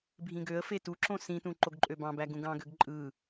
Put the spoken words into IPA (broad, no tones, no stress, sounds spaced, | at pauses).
bʱ ĩ ɡ ø ə̯ f e t u ǁ õ s ĩ t ũ ǃ o ɡ ǃʼ ø b ɑ̃ b æ ɡ ũ ɡ ɑ̃ ɡ ø ɡ ǃʼ ɯ